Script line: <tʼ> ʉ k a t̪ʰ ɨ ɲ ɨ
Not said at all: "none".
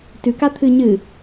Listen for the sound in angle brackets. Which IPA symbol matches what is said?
t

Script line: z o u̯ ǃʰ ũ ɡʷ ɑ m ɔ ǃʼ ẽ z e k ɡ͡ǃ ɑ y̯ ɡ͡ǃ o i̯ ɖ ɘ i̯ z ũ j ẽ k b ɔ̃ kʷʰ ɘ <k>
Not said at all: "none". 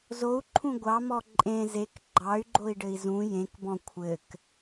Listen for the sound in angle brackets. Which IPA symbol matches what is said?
k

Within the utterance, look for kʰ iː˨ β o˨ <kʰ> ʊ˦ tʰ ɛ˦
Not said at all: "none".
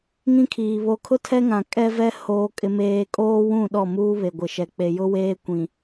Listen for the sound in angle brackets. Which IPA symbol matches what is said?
kʰ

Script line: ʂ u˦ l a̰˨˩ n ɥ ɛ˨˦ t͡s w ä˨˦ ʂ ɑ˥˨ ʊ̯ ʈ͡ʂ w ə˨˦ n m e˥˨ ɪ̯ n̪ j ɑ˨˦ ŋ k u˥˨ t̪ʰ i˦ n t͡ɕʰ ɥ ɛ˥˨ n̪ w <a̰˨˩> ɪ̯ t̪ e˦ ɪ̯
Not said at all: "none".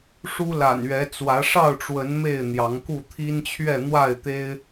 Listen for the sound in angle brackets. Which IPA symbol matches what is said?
a˥˨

